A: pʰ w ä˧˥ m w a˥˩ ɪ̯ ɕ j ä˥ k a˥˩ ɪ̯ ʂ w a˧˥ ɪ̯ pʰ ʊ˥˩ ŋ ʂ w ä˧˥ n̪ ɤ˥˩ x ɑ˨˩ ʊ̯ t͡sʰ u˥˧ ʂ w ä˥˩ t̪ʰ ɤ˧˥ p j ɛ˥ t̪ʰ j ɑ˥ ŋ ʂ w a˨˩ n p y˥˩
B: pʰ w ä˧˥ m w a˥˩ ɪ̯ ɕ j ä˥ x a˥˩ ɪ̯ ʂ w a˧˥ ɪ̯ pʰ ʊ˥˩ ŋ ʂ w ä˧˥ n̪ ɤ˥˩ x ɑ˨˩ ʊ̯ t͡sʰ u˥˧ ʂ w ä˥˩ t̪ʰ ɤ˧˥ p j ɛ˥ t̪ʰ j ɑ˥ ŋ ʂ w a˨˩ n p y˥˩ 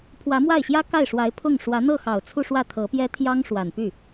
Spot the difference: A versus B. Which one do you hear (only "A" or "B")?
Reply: A